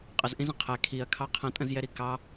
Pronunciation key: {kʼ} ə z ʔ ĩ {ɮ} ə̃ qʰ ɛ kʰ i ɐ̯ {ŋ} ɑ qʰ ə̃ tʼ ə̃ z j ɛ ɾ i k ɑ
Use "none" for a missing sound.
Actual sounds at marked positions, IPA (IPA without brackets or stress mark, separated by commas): qʼ, z, kʰ